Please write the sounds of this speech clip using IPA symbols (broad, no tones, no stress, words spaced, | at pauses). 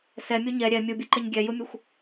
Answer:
sɛmʲo ɲɛ ɾʲɛ mʲubʲoǃɛɲ ɡʲɛjumʲuxʷ